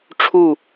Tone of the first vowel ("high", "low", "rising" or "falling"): falling